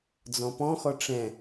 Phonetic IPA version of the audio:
d͡z ɔ̃ p ɔ̃ x ɔ ʈ͡ʂ ɛ̃

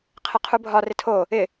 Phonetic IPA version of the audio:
qʰ ɪ qʰ u bʱ ɒ r ɪ tʰ o | ɪ

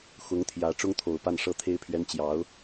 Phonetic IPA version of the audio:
x ʊ˧˥ ŋ t̪ʰ j ä˧˥ ʈ͡ʂ ʊ˥ ŋ t̪ʰ o˨˩ ʊ̯ p a˥˩ n ʂ ɤ˥ t̪ʰ e˥ ɪ̯ pʰ ɥ ɛ˥ n t͡ɕ j ɑ˧˥ ʊ̯

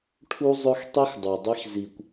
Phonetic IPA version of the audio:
ʈʰ u˦ zˤ ɵ˦ x tˤ i˦ x dˤ o˨ dˤ i˦ x z i˨ kʷ

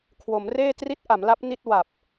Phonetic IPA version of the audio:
kʰ w o˩˦ m r eː˥˩ t r i˦˥ t̚ ʔ a˩˦ m l a˦˥ p̚ n i˥˩ t̚ w a˨˩ p̚

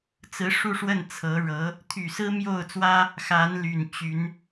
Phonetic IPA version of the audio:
t͡s ɹ̩˧˥ ʂ u˥˧ ʂ w ə˥˩ n t͡sʰ ɤ˧˥ ɻ ɤ˧˥ | t̪ʰ y˨˩ s ɹ̩˥ m j o˥˩ ʊ̯ t͡s w ä˥ | x a˧˥ n l y˨˩ n t͡ɕ y˧˥ n

